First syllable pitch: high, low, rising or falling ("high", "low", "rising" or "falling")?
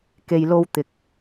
low